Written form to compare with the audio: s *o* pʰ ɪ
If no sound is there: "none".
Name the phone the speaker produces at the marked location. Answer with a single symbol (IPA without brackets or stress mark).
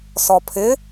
ɔ